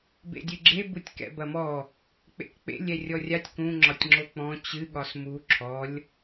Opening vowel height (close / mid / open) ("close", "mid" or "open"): mid